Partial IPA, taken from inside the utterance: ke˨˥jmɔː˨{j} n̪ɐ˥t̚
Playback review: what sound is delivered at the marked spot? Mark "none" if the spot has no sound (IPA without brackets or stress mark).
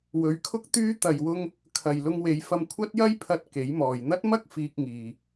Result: j